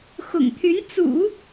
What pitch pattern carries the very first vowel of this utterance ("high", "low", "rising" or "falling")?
low